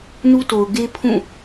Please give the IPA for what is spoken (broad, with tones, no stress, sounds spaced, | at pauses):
n u˦ t o˨ ʊ̯ ɡ e˦ pʰ ũ˦˨